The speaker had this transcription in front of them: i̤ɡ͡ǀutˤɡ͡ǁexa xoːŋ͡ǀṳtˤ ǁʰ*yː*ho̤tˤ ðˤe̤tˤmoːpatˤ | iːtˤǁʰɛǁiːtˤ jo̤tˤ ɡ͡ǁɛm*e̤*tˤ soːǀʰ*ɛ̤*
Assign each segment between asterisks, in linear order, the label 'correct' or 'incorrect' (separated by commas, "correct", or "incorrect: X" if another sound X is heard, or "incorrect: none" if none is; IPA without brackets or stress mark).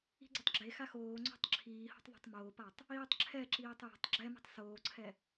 incorrect: iː, correct, incorrect: ɛ